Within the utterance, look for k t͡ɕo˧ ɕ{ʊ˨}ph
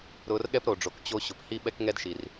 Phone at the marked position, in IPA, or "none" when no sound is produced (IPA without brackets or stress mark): ʊ˨